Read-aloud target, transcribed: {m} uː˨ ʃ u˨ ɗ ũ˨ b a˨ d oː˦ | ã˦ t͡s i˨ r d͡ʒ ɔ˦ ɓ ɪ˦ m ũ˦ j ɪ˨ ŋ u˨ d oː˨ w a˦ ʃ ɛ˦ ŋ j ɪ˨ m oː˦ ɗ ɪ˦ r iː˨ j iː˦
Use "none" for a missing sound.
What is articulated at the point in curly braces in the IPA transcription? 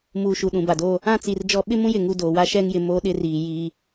m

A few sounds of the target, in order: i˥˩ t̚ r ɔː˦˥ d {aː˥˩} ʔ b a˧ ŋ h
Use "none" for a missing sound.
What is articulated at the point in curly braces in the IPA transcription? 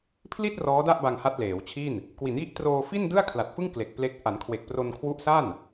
a˥˩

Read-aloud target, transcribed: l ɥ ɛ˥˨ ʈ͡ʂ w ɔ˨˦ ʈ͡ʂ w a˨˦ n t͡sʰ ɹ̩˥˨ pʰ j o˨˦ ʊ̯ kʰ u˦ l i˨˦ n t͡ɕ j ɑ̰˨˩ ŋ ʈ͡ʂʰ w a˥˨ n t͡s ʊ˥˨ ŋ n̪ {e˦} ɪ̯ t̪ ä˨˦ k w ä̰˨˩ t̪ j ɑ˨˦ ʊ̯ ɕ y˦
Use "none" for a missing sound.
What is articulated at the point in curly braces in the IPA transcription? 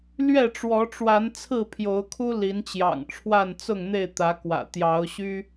e˥˨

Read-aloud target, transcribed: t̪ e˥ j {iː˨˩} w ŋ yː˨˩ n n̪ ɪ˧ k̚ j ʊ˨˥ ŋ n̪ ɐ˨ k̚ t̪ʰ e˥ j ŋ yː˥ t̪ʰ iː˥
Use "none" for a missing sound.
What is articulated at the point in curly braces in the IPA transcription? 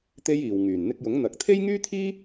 iː˨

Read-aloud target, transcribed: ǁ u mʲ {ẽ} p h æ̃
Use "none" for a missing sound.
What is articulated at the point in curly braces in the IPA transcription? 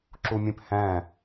ẽ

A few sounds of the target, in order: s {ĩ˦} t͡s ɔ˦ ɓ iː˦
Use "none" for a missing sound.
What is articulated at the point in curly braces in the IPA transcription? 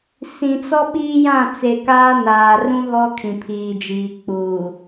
ĩ˨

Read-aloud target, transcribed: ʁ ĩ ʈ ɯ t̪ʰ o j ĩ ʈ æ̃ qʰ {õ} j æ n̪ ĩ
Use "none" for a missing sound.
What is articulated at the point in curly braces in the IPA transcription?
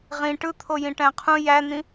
ũ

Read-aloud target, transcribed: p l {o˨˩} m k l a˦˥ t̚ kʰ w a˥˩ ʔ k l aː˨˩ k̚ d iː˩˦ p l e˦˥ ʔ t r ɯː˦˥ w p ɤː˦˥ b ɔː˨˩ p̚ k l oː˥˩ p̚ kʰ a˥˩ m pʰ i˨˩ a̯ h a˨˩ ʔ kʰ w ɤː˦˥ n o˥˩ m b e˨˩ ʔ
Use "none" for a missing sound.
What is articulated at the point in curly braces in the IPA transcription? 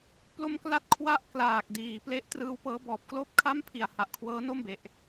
o˧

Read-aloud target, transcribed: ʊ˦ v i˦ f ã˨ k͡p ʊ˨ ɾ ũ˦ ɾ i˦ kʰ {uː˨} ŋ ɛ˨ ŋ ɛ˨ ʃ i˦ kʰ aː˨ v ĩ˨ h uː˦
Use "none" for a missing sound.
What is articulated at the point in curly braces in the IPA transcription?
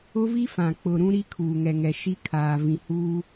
uː˨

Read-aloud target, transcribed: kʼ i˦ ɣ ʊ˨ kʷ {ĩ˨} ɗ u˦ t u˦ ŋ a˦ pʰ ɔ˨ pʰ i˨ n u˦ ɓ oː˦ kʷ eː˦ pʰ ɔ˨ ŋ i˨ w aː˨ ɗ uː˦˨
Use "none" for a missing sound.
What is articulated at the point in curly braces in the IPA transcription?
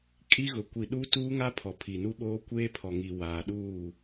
i˨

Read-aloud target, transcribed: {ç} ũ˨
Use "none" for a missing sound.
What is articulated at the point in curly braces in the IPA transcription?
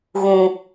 ɣ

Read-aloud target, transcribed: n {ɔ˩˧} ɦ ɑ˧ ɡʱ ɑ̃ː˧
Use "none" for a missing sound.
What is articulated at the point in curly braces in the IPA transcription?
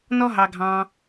ɔ˥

